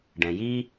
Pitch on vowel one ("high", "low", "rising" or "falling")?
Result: low